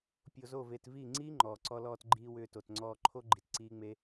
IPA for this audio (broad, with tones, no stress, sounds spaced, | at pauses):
pʲ o˧ z o˦˨ v e˧ t v i˦˨ ŋ͡ǀ iː˦ ŋ͡ǃ ɔː˨ ǀ ɔ˧ l ɔː˧ t ɡ͡ǃ iː˧ w ʏː˧ t o˨ t ŋ͡ǀ ɔː˧ ǃʰ o˦ ɡ͡ǃ i˨ t ǀ iː˦ ŋ͡m e˦